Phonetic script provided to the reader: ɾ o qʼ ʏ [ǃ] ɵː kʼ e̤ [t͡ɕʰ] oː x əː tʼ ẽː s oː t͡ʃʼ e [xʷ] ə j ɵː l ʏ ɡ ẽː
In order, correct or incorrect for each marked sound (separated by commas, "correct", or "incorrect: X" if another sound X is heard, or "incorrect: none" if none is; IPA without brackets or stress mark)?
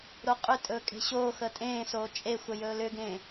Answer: incorrect: tʼ, incorrect: ɕ, correct